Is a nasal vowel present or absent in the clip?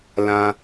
present